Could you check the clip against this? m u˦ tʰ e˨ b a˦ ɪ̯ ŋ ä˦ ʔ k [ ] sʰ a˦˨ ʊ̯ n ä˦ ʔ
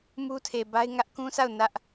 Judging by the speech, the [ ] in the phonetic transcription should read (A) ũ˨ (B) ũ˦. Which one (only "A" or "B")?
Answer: B